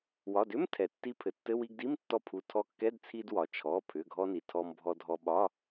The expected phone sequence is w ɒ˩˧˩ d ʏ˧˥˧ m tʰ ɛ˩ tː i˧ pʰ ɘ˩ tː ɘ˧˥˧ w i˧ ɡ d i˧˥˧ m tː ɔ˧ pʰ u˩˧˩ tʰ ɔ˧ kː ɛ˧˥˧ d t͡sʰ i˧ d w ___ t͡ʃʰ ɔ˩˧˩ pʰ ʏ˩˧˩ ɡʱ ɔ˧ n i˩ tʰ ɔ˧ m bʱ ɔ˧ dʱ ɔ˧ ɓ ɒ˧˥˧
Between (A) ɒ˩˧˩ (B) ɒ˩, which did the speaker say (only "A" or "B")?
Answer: B